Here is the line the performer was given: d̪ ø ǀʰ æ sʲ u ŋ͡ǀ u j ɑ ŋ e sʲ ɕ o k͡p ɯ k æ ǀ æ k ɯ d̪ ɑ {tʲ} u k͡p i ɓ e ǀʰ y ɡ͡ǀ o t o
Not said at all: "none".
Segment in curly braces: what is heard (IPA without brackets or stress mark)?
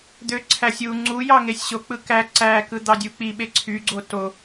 dʲ